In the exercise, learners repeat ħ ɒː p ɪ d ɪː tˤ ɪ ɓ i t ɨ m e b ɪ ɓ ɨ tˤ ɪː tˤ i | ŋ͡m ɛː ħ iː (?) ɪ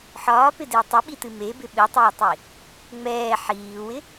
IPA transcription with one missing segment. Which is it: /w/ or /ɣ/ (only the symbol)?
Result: w